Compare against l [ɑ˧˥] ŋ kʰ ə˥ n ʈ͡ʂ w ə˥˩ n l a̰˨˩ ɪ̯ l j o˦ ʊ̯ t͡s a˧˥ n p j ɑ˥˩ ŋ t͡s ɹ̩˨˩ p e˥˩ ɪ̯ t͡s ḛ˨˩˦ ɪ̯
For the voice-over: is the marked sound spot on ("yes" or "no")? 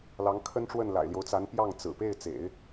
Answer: yes